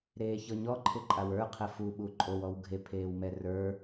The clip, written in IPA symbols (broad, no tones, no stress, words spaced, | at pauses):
ɾeːçɤɲɔ ǃʰɪǃʼawə˞ qʰɛfu ɓuǃʼow ɔwɡʱe pʰeːwmɛrə˞